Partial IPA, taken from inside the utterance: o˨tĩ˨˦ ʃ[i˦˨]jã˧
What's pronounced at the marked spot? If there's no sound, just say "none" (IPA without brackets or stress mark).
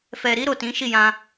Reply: i˦˨